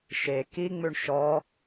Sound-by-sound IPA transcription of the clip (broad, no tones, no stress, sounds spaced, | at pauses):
ʃ e k i ŋ͡m ʉ ɳ ʃ ɔ